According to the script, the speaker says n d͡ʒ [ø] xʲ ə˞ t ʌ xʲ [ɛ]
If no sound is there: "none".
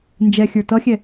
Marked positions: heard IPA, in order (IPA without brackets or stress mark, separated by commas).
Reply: ɛ, ɛ